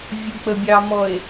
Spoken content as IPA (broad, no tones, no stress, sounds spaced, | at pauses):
vʲ ʊ k͡p ə bʲ ɑ m ɔ e̯